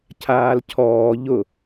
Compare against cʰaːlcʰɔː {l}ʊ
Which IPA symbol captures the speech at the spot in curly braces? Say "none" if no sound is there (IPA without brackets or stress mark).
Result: ʎ